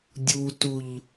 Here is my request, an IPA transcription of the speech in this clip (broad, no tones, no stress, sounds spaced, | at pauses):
dʲ u t u ʎ